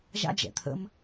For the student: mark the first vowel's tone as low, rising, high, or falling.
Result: high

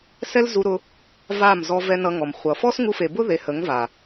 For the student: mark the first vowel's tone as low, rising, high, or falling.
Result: high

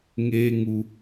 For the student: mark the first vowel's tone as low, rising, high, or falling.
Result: high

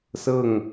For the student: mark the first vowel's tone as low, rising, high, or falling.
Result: falling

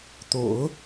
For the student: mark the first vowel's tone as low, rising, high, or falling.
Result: low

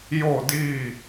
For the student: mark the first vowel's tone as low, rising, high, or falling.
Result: falling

